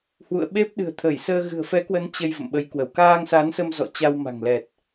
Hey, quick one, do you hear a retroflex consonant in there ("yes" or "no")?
no